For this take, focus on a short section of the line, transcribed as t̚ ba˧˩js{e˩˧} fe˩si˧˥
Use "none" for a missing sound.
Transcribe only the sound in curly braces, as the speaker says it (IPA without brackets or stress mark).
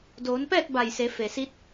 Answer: e˩˧